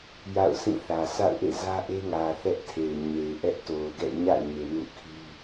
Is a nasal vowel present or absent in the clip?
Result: present